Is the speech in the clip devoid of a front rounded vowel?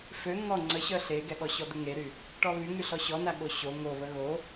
no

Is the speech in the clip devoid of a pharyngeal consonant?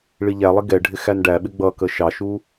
yes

